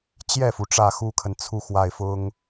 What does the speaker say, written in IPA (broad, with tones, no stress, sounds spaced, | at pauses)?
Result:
t͡ɕ j ɛ˥˩ f u˩ ʈ͡ʂ ä˥˩ x u˥ kʰ ə˨ n t͡sʰ u˥˧ x w a˥˩ ɪ̯ f ʊ˥ ŋ